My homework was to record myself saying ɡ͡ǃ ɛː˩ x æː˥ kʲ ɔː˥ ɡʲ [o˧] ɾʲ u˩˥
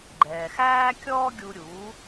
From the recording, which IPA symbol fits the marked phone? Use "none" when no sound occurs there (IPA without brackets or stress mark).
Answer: u˧